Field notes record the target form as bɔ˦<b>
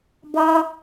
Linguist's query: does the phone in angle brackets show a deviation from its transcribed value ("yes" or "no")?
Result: yes